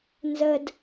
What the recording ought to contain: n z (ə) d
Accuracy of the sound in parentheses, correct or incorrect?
correct